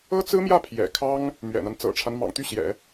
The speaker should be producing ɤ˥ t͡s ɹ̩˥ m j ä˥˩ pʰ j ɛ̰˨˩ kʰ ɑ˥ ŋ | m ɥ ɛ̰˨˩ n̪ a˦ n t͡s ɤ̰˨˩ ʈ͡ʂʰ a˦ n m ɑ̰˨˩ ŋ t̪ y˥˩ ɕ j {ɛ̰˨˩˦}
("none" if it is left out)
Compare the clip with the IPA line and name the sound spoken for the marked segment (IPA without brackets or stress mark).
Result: ɛ̰˨˩˦